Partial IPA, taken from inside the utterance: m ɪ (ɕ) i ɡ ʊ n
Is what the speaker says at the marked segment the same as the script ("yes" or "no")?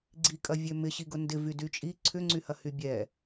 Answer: yes